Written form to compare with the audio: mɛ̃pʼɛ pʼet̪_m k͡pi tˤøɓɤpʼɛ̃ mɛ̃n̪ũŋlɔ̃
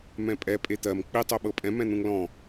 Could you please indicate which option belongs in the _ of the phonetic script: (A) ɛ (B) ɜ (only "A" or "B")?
B